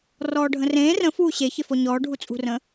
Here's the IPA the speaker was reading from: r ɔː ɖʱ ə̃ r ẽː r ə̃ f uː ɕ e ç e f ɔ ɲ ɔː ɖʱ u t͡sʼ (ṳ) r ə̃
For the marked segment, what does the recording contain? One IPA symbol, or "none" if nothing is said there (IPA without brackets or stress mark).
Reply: ṳ